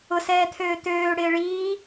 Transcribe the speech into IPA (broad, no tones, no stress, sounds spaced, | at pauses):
ʊ s ɛː t̪ʰ øː t̪ øː ɽ ɪː ɭ iː